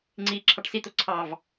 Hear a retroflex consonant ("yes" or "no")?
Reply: yes